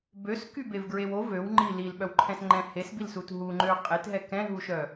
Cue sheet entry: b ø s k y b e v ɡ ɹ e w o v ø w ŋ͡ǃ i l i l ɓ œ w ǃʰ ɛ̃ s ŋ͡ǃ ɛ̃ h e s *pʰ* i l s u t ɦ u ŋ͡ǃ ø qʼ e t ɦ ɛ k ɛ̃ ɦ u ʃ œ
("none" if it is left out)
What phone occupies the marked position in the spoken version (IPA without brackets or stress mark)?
b